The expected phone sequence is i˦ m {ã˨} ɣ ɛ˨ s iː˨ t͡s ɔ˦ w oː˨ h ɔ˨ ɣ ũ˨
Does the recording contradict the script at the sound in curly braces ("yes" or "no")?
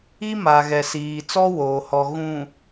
yes